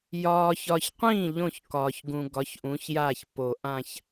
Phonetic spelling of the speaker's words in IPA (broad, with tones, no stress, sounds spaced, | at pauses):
j ɒː˨ ç ɒ˨ ç qʷ ĩː˥˩ ʎ õ˥˩ ç k ɒː˨ ç ɡ ũ˨ ɡ ɒ˨˥ ç ʔ ũ˨˥ ç j aː˥˩ ç p o˨˩˦ ʔ ã˥˧ ç